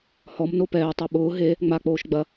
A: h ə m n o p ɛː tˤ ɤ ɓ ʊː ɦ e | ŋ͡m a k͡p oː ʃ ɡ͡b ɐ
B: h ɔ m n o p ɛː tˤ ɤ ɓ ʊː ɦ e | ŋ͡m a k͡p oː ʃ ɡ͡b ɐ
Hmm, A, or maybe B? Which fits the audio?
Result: B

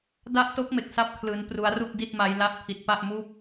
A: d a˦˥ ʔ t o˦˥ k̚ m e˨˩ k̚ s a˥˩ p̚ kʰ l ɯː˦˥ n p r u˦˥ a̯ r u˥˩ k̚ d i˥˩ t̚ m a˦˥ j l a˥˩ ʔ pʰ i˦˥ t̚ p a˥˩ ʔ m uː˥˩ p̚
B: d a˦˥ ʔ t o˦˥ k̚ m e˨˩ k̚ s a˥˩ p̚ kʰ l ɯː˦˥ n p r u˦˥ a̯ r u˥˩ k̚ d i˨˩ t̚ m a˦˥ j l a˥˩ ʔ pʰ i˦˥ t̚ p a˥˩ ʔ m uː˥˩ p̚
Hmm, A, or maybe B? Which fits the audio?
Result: A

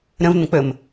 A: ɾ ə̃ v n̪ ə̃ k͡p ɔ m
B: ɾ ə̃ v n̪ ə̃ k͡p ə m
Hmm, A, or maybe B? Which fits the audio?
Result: B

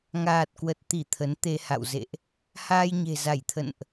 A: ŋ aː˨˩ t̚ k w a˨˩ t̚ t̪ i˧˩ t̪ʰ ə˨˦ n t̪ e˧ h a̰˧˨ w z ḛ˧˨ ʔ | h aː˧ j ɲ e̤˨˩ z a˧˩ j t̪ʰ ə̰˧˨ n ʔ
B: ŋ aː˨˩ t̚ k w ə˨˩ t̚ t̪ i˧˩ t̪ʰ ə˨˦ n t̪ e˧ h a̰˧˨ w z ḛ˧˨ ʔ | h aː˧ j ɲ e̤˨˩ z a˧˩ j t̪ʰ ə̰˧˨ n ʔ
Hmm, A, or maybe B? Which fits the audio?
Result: B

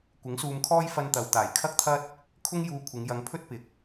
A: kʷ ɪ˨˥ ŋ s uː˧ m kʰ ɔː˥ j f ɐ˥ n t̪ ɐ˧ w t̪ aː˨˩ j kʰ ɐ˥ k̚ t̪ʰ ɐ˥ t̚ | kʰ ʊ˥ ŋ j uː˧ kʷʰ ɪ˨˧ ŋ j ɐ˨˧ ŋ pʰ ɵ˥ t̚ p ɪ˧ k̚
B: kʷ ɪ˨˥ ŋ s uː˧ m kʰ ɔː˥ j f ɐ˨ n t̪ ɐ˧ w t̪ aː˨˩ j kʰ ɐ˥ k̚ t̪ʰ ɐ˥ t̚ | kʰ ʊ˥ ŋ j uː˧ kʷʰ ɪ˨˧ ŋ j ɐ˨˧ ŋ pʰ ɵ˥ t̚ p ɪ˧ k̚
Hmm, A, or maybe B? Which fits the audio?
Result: A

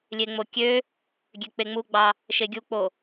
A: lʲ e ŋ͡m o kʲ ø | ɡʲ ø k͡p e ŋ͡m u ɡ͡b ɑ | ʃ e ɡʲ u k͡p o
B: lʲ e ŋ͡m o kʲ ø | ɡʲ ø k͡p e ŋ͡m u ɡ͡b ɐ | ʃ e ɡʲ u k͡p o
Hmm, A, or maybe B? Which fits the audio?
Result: A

